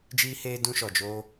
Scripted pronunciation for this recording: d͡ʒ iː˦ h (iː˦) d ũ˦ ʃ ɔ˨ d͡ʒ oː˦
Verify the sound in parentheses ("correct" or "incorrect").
incorrect